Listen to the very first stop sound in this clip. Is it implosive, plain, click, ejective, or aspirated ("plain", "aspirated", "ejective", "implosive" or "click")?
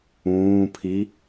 aspirated